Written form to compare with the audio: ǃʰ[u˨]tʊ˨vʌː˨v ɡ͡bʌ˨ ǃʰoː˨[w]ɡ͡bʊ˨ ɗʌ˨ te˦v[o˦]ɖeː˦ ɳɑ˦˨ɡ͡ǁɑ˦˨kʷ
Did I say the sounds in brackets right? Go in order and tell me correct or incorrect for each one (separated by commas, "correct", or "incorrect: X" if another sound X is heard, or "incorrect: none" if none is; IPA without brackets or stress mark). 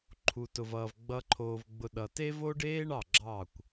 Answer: correct, incorrect: v, correct